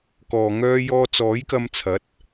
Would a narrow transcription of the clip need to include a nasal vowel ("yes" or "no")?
no